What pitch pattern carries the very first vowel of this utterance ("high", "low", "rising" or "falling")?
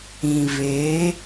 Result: low